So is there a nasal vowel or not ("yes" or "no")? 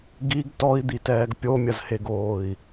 no